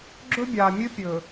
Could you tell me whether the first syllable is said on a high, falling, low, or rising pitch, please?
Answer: high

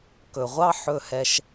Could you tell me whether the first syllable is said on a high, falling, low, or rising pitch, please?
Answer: low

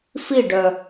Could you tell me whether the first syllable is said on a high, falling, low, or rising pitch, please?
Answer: falling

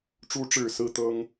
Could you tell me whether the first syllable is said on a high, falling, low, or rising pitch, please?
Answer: rising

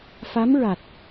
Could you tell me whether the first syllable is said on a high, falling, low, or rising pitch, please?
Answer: rising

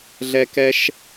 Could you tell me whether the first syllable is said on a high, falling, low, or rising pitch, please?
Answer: high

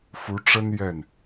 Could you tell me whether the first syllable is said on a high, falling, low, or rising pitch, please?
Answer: rising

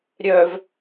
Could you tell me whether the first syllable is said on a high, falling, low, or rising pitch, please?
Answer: low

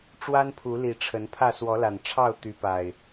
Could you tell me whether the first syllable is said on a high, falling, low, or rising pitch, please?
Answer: high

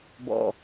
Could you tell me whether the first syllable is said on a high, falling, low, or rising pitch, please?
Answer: low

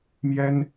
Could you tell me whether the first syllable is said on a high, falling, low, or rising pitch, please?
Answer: high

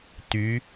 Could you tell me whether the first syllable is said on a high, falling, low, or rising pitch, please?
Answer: rising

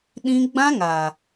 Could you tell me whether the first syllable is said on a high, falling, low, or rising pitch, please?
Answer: high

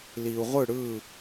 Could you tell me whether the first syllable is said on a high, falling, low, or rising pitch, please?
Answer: low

